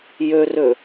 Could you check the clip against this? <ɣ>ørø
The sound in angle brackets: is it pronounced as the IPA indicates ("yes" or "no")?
no